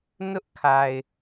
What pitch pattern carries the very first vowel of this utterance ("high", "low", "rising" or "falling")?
high